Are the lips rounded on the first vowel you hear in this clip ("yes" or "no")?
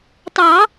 no